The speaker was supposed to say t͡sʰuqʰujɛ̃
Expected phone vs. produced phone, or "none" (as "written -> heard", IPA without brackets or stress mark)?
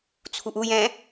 qʰ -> ʔ